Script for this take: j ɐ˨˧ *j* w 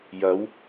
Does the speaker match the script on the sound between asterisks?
no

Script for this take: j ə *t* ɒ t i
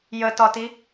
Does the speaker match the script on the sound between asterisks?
yes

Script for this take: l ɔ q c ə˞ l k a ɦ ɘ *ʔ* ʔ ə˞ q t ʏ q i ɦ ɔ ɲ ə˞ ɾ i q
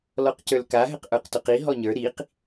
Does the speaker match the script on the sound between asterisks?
no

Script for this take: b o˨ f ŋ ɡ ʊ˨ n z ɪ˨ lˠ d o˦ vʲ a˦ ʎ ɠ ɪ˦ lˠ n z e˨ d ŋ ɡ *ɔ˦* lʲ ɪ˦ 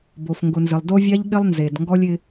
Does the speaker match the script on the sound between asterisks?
yes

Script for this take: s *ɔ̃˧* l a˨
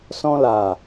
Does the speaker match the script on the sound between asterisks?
yes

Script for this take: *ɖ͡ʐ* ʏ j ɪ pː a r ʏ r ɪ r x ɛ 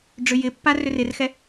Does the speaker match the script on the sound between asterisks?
yes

